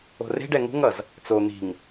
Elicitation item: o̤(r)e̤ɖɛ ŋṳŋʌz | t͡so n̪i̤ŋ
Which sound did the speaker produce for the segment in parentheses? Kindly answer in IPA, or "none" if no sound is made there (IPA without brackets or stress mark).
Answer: r